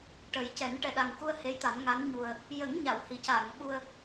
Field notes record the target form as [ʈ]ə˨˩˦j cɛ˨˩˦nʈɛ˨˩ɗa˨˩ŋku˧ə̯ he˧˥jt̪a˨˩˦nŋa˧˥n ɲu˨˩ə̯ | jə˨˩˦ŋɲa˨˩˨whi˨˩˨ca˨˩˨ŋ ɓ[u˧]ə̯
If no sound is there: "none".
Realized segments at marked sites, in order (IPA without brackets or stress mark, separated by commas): ʈ, u˧